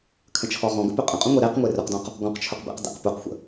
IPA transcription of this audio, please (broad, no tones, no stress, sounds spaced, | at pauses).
kʰ ə̃ t͡ʃʰ ɔ ʁ ɔ̃ ɡ ə̰ p ø qʼ ə̃ qʼ ũ ŋʷ e ɾ e q ŋʷ e r ʊ q d ɔ̃ q | ɡ ɔ̃ q t͡ʃʰ ʊ q b ḛ q d ḛ q p u q xʷ ə̰